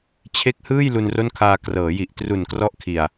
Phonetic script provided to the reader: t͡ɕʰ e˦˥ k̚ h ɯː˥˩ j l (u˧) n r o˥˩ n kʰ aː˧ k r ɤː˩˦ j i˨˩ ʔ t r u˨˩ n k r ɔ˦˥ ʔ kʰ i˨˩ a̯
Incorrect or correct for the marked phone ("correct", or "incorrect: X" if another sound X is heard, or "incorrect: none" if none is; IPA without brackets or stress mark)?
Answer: correct